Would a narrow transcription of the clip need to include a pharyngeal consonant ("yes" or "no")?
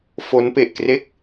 no